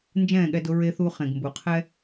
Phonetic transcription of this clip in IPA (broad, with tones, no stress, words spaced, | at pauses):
nd͡ʒɛ̃ː˥˩ɠɛ˧dʊ˧ ɹe˧θu˧ χẽ˩ɡmbu˩qʰɛ˥